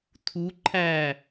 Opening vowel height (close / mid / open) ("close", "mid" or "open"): close